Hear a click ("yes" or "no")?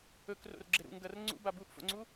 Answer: yes